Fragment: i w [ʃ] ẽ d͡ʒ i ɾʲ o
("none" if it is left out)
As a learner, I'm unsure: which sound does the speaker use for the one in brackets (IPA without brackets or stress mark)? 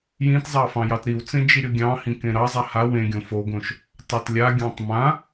t͡s